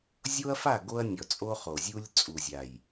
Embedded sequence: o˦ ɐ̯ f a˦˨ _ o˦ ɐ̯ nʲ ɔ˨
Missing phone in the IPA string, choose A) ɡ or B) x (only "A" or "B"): A